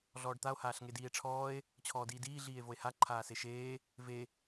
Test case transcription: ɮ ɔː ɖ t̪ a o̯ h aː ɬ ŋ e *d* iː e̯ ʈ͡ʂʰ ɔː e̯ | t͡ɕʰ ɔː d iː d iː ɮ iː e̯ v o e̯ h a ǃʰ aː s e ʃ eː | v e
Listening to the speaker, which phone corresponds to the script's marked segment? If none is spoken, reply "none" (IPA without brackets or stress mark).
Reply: d